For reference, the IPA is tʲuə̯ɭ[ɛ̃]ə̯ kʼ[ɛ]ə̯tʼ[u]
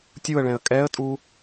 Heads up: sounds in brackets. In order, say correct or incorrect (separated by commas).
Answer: correct, correct, correct